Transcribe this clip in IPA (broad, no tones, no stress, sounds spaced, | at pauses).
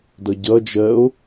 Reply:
d ʌ ɟ ʌ d͡ʒ ɜ o̯